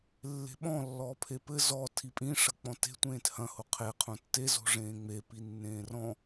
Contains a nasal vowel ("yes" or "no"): yes